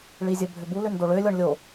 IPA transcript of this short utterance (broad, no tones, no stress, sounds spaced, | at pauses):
ɭ i zʲ ə bʱ ʏ b u l ʏ n d o ɭ ø lʲ ɔ ɳ lʲ o